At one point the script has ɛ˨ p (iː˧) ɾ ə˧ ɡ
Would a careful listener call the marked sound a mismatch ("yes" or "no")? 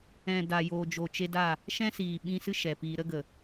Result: no